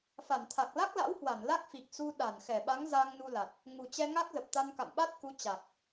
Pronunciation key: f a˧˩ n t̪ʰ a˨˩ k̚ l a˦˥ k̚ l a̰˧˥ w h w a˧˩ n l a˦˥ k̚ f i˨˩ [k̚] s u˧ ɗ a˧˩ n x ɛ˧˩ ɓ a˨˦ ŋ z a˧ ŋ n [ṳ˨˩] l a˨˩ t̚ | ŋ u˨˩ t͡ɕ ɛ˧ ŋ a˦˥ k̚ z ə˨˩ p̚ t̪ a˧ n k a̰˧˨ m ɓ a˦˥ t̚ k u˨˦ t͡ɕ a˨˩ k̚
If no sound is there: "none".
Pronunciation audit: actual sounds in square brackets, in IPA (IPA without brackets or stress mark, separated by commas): k̚, u˧